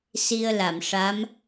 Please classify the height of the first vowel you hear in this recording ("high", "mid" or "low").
high